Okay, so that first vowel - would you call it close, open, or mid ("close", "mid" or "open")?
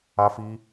open